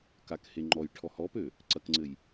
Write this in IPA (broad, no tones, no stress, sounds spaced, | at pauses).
k a k h e ŋ͡ǃ ɔ j ʈʰ ɔ h ɔ p ø | ǀ ɐ k ŋ͡ǀ ɘ j